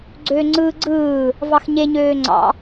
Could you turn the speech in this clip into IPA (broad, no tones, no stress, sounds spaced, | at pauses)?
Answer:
ɡ͡ǀ øː ŋ͡ǀ ɯː ɡ͡ǀ ɯː | v ɑ x ɲ e ɲ øː ŋ͡ǀ ɑ̰